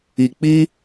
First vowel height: high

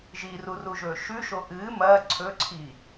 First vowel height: high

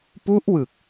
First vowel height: high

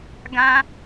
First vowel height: low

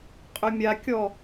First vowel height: mid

